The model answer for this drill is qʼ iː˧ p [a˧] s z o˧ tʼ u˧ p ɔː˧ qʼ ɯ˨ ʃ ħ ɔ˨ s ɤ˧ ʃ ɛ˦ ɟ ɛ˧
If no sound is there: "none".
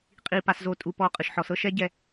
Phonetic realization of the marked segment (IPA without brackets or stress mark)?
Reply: a˧